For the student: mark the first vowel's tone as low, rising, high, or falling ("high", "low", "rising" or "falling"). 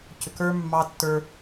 low